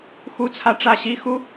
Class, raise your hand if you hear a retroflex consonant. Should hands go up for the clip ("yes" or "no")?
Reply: yes